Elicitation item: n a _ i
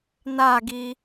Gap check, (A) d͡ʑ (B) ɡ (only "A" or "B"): B